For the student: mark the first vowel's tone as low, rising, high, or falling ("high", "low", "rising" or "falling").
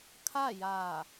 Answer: falling